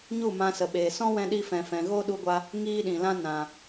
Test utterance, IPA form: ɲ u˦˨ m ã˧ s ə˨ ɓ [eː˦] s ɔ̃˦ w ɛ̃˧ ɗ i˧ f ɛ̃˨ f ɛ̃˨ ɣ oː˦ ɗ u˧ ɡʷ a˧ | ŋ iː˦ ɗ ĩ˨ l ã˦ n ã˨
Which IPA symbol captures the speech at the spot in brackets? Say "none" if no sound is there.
eː˨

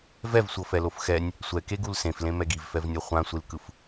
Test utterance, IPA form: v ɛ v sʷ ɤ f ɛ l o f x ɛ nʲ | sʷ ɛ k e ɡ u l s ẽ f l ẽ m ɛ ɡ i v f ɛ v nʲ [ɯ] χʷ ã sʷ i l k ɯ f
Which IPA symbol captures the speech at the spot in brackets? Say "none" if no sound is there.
ɤ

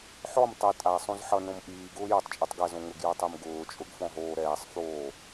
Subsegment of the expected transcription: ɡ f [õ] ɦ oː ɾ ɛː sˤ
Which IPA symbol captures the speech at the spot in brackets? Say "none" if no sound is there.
ɔ̃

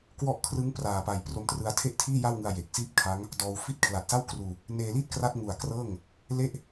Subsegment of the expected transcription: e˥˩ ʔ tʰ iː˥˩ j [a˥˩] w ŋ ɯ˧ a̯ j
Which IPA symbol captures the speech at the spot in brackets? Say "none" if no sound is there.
a˥˩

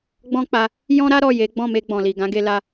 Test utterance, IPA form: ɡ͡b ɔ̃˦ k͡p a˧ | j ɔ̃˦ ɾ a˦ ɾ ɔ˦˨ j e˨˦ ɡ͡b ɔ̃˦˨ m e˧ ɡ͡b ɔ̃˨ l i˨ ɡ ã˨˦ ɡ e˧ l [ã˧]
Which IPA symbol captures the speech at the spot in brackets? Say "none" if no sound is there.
a˧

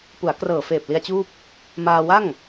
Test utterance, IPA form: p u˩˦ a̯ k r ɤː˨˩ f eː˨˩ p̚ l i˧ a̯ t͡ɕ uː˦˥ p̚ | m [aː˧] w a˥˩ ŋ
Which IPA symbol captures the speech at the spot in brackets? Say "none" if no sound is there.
aː˧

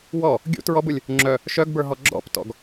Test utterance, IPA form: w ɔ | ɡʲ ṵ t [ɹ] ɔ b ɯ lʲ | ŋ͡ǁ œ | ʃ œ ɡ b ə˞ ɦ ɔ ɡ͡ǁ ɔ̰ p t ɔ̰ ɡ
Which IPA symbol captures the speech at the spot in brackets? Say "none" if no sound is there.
ɹ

